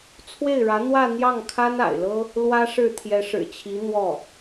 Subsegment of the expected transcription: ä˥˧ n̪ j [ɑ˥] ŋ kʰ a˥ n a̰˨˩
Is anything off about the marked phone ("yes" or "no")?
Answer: yes